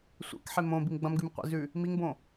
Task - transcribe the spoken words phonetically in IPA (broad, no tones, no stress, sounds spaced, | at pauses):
sʷ ḛ k ħ e m õ b i m ɡ͡b ɐ̃ m ɡ ʉ m qʷ ḭ z ʉ | m i ŋ b õ